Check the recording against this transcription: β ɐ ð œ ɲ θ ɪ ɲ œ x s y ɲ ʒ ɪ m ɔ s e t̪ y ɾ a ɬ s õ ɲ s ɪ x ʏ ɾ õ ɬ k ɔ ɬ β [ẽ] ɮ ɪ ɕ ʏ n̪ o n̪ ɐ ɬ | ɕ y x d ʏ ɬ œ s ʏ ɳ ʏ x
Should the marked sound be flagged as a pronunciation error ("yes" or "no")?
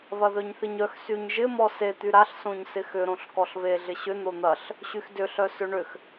yes